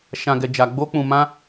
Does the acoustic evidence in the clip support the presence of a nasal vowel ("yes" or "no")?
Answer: yes